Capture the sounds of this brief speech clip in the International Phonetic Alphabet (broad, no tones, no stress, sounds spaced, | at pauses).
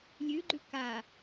lʲ ʉ ɡ͡ǃ ʉ k a